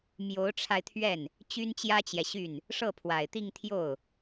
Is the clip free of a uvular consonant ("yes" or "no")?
yes